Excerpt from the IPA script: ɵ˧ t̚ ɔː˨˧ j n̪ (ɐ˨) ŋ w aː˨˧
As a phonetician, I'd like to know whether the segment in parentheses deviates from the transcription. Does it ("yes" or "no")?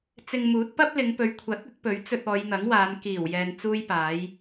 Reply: yes